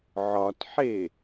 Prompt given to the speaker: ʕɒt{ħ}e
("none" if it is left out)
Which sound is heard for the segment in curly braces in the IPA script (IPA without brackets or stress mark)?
ħ